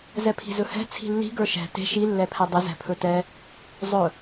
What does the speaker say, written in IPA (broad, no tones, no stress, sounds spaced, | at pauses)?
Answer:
z ɛ pʰ i̤ z ɵ h ɛ̤ t͡sʰ i̤ lː i̤ ɡ ə˞ ʃ ɛ̤ t e̤ ʃ i lː ɛ pʰ ɛ dˤ ɪ z ɛ̤ pʰ ɵ t ɛ | zˤ ɵ